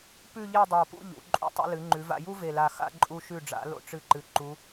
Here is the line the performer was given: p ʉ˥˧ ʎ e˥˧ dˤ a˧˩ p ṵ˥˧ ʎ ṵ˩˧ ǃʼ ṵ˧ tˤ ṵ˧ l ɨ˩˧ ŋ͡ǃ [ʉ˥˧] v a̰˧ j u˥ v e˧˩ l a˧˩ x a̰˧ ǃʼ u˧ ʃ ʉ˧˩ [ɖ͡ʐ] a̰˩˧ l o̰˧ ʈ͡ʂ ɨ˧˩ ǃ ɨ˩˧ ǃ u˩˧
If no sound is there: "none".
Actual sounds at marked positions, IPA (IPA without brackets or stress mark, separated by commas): ʉ˩˧, ɖ͡ʐ